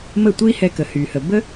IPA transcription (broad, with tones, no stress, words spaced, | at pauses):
mə˥˩tʷi˥hɛ˧ kə˩hy˩hə˩ bə˥